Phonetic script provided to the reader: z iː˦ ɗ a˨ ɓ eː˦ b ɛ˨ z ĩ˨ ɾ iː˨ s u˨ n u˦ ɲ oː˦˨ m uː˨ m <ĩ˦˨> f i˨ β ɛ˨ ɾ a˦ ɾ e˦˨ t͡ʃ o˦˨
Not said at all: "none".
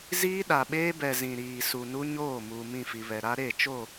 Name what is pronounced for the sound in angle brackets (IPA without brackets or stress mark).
ĩ˦˨